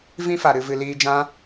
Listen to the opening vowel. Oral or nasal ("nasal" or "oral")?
nasal